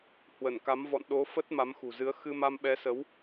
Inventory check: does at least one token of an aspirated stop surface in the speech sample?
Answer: no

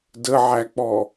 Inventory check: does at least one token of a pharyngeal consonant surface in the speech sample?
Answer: yes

